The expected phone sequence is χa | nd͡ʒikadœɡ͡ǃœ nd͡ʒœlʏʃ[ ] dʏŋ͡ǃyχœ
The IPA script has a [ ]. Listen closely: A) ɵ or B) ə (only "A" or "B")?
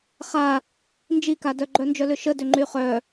B